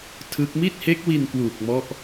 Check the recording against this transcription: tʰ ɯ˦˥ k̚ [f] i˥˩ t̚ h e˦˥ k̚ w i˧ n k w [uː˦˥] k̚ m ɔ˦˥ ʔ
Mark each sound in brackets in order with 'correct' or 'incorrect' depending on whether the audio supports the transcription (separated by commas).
incorrect, incorrect